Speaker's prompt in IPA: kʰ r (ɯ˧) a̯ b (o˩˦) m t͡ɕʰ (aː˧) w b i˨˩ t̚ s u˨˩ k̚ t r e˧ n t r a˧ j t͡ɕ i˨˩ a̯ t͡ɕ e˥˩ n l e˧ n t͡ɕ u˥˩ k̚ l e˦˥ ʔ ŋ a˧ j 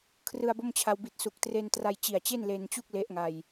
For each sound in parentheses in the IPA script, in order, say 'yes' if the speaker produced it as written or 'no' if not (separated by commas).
yes, no, no